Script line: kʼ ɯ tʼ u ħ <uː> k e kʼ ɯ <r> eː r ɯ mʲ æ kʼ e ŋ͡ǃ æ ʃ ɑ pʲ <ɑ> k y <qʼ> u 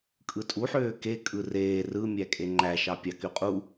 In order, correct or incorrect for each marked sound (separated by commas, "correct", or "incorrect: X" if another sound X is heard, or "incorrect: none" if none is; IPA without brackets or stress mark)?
incorrect: øː, correct, correct, correct